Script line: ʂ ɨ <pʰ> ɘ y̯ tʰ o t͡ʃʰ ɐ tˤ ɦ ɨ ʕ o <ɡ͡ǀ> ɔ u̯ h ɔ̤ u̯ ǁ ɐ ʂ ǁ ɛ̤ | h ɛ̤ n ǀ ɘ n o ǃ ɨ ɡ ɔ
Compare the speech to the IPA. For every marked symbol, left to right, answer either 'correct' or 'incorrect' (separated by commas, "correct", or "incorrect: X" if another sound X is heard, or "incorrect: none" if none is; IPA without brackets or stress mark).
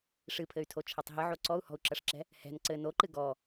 correct, incorrect: ǀ